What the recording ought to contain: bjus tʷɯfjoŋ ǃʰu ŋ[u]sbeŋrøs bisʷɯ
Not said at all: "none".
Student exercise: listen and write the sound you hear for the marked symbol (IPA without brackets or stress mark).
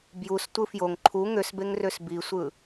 ø